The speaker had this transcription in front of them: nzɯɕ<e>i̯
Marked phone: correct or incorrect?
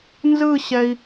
incorrect